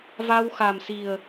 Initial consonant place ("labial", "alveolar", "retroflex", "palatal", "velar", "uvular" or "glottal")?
labial